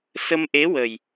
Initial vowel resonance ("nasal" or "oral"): oral